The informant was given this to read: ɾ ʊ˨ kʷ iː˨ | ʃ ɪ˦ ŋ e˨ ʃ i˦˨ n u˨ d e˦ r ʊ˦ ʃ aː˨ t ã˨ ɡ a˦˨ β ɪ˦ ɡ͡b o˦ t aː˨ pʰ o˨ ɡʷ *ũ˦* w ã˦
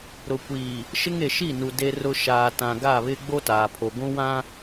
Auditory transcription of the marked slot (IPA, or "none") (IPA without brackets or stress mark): ũ˦